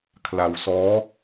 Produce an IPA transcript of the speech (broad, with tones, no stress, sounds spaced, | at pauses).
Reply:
kʰ l a˧ w s ɔː˦˥